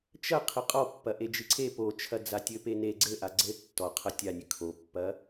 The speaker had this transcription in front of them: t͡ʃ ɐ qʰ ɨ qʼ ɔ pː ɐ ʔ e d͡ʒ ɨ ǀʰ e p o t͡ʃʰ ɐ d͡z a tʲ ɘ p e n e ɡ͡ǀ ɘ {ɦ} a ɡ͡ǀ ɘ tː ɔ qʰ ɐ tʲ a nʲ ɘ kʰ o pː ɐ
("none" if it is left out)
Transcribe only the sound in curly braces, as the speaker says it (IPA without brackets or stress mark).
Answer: ʔ